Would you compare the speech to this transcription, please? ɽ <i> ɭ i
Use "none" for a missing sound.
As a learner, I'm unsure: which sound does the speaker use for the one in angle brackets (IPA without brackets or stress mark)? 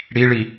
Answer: i